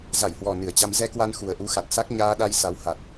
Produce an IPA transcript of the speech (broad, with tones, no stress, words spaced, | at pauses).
za˧˩jhwɔ˨˩ nɨ˨˩ə̯t͡ɕa˧m zɛ˧kwa˧n xu˨˩ə̯ʔu˧xa˨˩t̚sa˦˥k̚ ɲaː˧ɗa˧jsa˨˦wha˨˩t̚